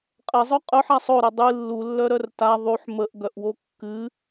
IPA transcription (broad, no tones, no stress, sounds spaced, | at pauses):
qʼ ɛ zˤ œ qʼ œ ħ a sˤ o ɾ ə dˤ ɨ lː u lː œ ɾ œ r t a ðˤ u ħ m ə ʔ ɡ œ ʔ w o kː ɨ